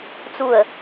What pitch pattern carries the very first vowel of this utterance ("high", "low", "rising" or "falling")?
low